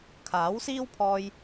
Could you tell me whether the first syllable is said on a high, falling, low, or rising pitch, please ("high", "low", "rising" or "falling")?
rising